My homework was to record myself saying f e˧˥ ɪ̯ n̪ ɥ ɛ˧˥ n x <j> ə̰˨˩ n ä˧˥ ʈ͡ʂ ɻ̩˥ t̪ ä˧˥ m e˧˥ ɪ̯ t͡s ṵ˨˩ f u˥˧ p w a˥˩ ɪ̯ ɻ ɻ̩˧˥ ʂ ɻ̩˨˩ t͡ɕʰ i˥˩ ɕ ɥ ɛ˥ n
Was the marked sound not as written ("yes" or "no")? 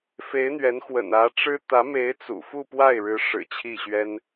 yes